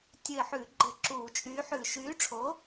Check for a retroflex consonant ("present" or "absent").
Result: present